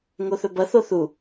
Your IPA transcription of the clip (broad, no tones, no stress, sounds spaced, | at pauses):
ŋ o θ ɵ b ɐ θ o θ u